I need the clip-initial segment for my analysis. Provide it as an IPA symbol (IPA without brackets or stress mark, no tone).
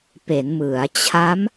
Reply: p